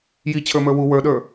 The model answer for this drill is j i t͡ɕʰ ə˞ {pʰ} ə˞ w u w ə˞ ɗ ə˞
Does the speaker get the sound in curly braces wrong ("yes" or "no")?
yes